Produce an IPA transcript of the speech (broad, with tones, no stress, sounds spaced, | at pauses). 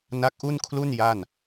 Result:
n a˦˥ k̚ ʔ u˥˩ n kʰ l u˥˩ n j a˥˩ n